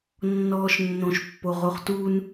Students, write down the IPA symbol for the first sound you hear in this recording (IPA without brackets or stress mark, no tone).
nː